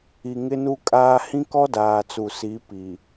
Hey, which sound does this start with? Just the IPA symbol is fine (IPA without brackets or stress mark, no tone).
i